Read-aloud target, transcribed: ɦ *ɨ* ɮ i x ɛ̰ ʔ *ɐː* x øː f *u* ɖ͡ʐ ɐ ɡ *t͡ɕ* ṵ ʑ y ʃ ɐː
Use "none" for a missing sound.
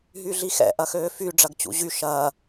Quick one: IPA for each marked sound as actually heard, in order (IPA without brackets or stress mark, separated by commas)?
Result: y, ɐ, y, t͡ɕ